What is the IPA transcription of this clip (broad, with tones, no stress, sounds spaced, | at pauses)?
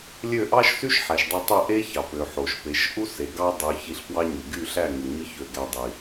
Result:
lʲ ø˦˨ ʔ ɑ˦ ʃ s y˦ ʃ ħ æ˨ ʃ dˤ ø˧ tˤ ɯ˦˨ ʔ e˦ ç ɑ˨ p ø˨ ħ o˨ ʃ p e˨˦ ʃ ʔ u˦ s e˨ ɡ ɑ˧ dˤ ø˨ ç i˧ ɬ p w ɑ˦ ɲ y˨ ɡ y˦˨ ɬ æ˦˨ ŋ u˨ ɲ ɯ˦ ç ø˧ ɡ æ˧ dˤ i˨